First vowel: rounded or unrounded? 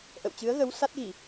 unrounded